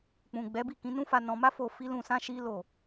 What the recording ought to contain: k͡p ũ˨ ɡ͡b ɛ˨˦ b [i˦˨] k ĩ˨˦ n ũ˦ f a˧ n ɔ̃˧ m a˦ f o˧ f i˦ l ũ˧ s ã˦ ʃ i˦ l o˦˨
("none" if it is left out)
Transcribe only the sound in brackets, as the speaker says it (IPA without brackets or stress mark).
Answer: i˦˨